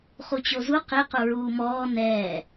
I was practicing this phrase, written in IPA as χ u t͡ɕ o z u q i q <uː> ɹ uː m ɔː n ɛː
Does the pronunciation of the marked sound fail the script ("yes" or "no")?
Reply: yes